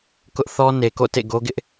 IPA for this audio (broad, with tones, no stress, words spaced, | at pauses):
kʊ˦ʔθɔ˦ ne˨ko̰˦˨ tḛ˦˨ɡo˦ɡɪ˦ʔ